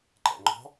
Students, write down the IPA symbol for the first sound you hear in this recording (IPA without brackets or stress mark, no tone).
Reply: ǃ